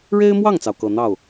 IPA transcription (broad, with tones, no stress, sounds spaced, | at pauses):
ɻ e˥ ɪ̯ m w ɑ˥˩ ŋ t͡s ɑ˩ ʊ̯ k ɤ˨˩ n̪ ɑ˥˩ ʊ̯